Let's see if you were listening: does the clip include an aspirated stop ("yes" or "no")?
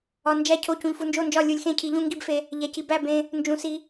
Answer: yes